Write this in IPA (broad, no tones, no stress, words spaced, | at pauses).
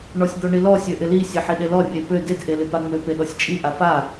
ɳɔsʲd̪ɔɳilɔ sʲøʔɪli sʲeħiɗelɔ rʲepø ded ʔelɪpaŋ͡mø peɗɔsʲt͡ʃʼi ʔafa